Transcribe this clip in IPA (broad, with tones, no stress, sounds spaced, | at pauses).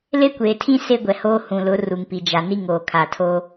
l e˦ kʷ eː˨ tʰ ĩ˦ s e˦ ɡʷ ɛ˨ h oː˦ h ũ˨ l ʊ˨˦ r u˨ ŋ p i˨ d͡ʒ a˨ n i˦ ŋ oː˨ kʰ a˨ tʰ o˦